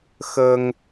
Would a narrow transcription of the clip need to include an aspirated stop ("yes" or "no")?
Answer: no